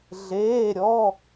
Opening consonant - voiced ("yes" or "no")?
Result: yes